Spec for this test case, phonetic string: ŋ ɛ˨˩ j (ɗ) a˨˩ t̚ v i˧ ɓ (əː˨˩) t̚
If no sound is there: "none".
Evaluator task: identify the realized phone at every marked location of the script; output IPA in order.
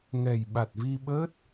ɓ, əː˦˥

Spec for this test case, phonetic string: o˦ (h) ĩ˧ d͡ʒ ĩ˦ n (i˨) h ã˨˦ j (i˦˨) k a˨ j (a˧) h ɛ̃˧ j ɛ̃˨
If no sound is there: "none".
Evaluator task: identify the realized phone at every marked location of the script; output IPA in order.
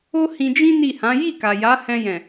h, i˦˨, i˦˨, a˨˦

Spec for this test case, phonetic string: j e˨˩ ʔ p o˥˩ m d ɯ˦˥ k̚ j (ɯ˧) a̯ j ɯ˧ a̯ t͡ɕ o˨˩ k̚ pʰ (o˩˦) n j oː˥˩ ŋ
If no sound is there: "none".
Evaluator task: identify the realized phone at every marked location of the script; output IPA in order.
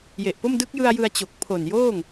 ɯ˧, o˨˩

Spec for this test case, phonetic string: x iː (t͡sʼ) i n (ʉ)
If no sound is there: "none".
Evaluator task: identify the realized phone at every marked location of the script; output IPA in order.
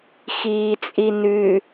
t͡sʼ, ʉ

